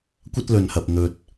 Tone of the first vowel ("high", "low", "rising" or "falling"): high